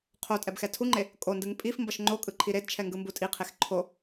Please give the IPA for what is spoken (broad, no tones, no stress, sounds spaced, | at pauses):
qʰ o tʼ ɛ b x ɛ tʰ u ŋ͡ǃ e | kʼ o n d ɯ ŋ pʼ i f m b ʌ ʃ ŋ͡ǃ o kʼ ɯ ǃʰ i ɾ e d t͡ʃʰ ɛ ŋ ɡ ɯ m b u tʼ i qʰ e x ǃʰ o